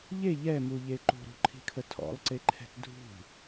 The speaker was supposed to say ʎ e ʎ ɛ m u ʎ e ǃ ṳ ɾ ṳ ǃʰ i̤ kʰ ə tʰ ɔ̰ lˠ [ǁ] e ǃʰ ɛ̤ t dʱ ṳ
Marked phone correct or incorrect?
incorrect